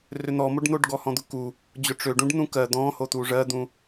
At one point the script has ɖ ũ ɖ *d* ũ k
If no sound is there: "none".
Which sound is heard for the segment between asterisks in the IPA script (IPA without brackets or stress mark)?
n̪